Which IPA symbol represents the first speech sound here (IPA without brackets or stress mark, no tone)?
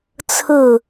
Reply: t͡sʰ